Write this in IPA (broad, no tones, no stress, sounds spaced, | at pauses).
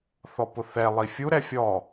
θ ɔ p ʊ θ ɛ lˠ i fʲ u ɾ ɛ fʲ ɔ